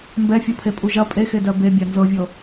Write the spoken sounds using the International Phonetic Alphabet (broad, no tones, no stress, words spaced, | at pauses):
mbɛfʲupʰe pʼuʒɐ pʼexedɜ bebʲa nzɤvʲɤ